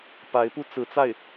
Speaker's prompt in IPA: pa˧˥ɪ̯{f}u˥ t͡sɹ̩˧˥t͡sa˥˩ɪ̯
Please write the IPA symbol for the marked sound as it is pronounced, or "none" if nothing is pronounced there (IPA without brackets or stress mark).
p